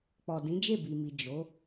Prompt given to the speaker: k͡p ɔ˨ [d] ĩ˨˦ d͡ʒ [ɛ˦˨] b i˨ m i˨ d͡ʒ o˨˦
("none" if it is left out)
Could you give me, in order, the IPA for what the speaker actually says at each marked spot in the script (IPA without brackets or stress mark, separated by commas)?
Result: d, e˦˨